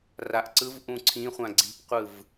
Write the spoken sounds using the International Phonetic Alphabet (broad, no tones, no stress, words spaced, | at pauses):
raʔǀɯvʔũ ǀʰĩ χʷãɡ͡ǀi̤pqʷɯv